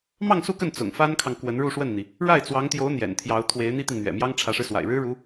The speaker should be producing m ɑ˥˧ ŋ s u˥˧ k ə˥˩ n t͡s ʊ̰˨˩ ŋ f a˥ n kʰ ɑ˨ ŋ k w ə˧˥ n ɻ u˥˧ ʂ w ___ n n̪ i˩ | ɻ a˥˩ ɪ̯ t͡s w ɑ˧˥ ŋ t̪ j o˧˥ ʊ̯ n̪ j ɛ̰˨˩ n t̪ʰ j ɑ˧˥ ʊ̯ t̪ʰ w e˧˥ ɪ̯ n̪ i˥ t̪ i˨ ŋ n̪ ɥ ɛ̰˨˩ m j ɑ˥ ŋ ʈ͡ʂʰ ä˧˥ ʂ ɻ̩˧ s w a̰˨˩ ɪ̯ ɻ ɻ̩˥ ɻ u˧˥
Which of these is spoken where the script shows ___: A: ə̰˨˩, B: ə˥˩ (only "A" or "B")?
B